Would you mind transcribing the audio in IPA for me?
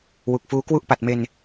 w u˨˩ k̚ f uː˦˥ k w u˥˩ ʔ p a˨˩ t̚ m e˧ n

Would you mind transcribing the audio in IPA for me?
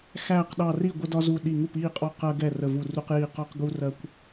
x æː˧˩ q ɗ ɑ˧˩ r i˥˩ ɡʷ ə˦ d ɒ˦ z u˧˩ ɗ i˧˩ ŋ u˥˩ p iː˥˩ qʼ ɔ˦ q ɜ˦ ɡ ɛ˥˩ r ə˧˩ v u˧˩ r u˦ q j i˧˩ q ɔ˦ q ɡ u˦ r ɜ˦ kʷ

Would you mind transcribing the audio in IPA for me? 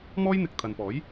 m ɔː˥ j n̪ ɪ˨ k̚ t̪ʰ ɐ˨ n p ɔː˨˥ j

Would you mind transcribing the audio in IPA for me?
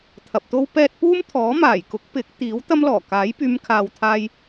t̪ʰ ɐ˨ p̚ t̪ o˥ w p ɛː˥ t̚ p uː˥ m t̪ʰ ɔː˨˥ m aː˨˩ j k ʊ˨˥ k̚ p ɪ˨˥ k̚ t̪ iː˨˥ w t̪ ɐ˥ m l ɔː˨˩ k aː˨˥ j p yː˨˧ m kʰ aː˨ w t̪ʰ aː˧ j

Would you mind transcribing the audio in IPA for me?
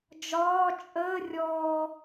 d͡ʒ ɒː t͡ʃʼ əː rʲ ɔː

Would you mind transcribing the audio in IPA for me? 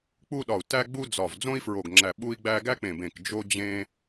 k͡p u˥ ɗ ɒ˧˩ u̯ t æ˥ ɡ͡b u˥ d͡z ɒ˧˩ v d͡z õ˥ i̯ f ɹ o˧˩ ɡ ŋ͡ǁ æ˧˩ ɓ u˥ i̯ ɡ͡b æ˥ ɡ æ˥ k͡p ẽ˧˩ b ẽ˧˩ k d͡ʒ o˥ d͡ʑ ẽ˥

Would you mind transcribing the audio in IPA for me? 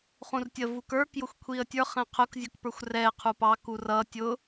χ ũ r tʲ ə v u k ə˞ k j ʊ xʷ kʷʰ i ə̯ tʲ ə˞ χ ɛ̃ qʰ ʊ k zʲ ʊ k p ə˞ xʷ r ɛ qʰ u p ɑ k u r ʌ tʲ ʊ

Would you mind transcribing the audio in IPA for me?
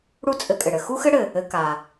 ɽ u˥ t͡sʼ ɘ˧ kʼ ɘ˩ ɽ ɘ˧ x u˥ x ɘ˥ ɽ ɘ˩ | ɘ˧ k a˩

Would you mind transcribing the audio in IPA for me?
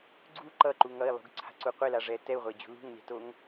ɡ͡ǀ u ǃ ʌ ǃ u ŋ ʌ i̯ lˠ ṳ ɡ ǀʰ a̤ ǀ u qʷ e l a ʐ ɛː t ɛ u̯ ʁʷ e d͡ʑ ṳ l ṳ ŋ lʲ a̤ t o ŋ

